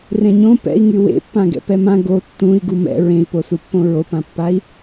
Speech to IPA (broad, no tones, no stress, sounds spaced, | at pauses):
r ẽ ɲ õ p ɛ̰ i̯ ŋ y w ḛ pː ã ɡ ɛ̰ p ɛ m ã ɡ o tː ũ i̯ ɡ u m ɛ̰ ɹ ẽ i̯ p o s u pː õ ɹ o p ã pː a i̯